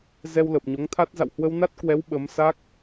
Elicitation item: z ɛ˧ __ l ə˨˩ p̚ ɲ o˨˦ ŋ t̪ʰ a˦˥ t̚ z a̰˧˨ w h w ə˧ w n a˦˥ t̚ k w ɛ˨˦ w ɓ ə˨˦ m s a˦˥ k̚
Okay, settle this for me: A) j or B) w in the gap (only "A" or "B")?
B